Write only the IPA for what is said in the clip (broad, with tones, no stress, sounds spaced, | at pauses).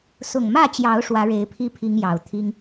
s ʊ˨˩ ŋ m ä˥˨ t͡ɕ j ɑ˨˦ ʊ̯ ʂ w ä˨˦ ɻ e˨˦ ɪ̯ pʰ i˦ pʰ i˦ ŋ j ɑ˨˩ ʊ̯ t̪ʰ i˦ ŋ